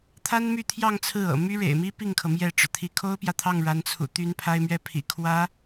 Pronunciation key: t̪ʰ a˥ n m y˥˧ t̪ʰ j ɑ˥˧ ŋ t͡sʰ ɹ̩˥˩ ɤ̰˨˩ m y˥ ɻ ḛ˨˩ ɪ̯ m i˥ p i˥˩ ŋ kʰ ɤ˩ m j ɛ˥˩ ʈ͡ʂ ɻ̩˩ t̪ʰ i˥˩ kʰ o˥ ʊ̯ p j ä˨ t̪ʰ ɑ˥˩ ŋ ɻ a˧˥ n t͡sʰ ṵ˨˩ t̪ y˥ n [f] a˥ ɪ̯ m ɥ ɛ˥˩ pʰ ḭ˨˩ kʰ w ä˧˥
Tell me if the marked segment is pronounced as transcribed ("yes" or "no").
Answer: no